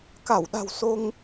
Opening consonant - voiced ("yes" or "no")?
no